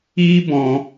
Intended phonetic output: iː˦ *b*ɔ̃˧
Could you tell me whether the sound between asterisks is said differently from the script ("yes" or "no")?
no